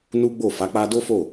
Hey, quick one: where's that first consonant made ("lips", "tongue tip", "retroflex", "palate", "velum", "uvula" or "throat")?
tongue tip